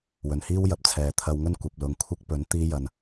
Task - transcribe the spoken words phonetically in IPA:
wɵ˨nhiː˥wjɐ˨p̚ t͡sʰɛː˨t̪ʰɐ˧wŋɵ˥n kʷɐ˨p̚lʊ˨˧ŋkʷʰɪ˥k̚ pɵ˨˥n t̪iː˥jɐ˧n

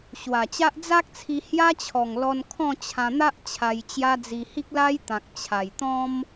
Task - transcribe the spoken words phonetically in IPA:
ɕwa˨˩t͡ɕa˦ʔ d͡za˦k̚t͡sʰi˧ hja˦t͡ɕʰɔ˨˩ŋlɔ˧n kʰɔ̃˥˧ t͡ɕʰã˧n̪a˦ʔ t͡ɕʰa˧jt͡ɕja˦d͡zi˧ hi˦k̚la˦j t̪ã˨k̚ t͡ɕʰa˨˩jt̪ɔ̃˦m

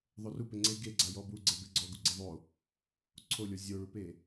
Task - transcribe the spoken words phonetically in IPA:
ðˤorupɪ ŋ͡ǀe ɡe ɡ͡ǀajɔbuɡ͡ǀɛ beɡ͡ǀɔɡu ɡ͡ǀeðˤo | ǀʰolʲɔ zʲoɭupe

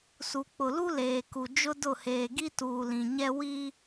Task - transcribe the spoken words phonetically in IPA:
su˨ k͡pʊ˨lu˦ leː˨ku˨ d͡ʒʊ˦dʊ˦˨ heː˨ɡi˦tuː˨ lĩ˨ɲɛ˦ wi˦

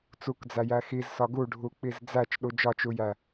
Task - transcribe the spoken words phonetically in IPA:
t͡sukd͡zæjæ xizsɒ ɡuɖʱuk͡piz d͡zæt͡ʃɗu d͡ʒɒt͡ʃujæ

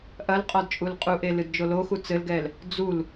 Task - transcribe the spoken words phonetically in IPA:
ʔɐlqʼɔd t͡ʃʼulqʼuʔe lɨdd͡ʒoloxu t͡sɘlɡɛl | d͡zul

